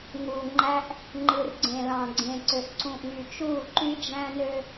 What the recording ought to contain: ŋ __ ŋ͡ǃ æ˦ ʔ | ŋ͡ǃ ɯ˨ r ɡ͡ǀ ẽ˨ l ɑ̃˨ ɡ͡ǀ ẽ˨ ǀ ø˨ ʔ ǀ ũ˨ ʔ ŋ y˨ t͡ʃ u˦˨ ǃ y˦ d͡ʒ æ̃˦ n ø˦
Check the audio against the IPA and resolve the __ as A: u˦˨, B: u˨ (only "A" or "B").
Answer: B